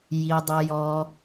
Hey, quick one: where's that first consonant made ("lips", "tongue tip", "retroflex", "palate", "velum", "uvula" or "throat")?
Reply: palate